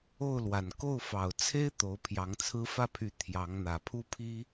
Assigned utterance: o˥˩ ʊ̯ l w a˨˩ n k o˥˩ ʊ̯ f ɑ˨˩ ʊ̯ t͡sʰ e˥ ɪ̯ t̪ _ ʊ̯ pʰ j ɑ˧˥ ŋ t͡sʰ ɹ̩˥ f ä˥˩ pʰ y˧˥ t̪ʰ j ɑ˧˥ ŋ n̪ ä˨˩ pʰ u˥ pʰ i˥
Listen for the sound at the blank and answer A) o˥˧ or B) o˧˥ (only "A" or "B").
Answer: B